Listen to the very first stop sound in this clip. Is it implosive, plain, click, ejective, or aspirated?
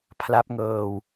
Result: aspirated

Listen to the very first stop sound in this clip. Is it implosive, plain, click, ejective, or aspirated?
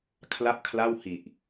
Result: aspirated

